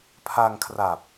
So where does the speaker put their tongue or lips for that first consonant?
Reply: lips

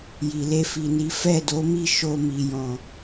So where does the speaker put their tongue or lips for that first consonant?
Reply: palate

